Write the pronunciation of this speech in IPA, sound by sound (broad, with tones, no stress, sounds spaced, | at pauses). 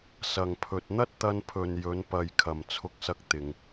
s ɐ˨ ŋ pʰ ɵ˨ t̚ n̪ ɐ˥ t̚ t̪ ɐ˧ n pʰ ɵ˨ n j ɵ˨˧ n p ɐ˨ j kʰ ɐ˨ m t͡sʰ ʊ˧ k̚ s ɐ˧ k̚ t̪ ɪ˨ ŋ